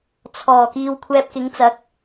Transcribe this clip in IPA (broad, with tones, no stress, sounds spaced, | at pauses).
t͡sʰ ɔː˨˩ k iː˧ w kʷʰ ɛː˧ p̚ k ɪ˨˥ ŋ t͡s ɐ˨˥ k̚